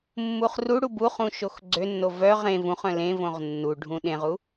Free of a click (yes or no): no